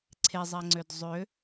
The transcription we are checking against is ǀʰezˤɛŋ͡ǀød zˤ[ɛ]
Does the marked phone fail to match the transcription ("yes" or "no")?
yes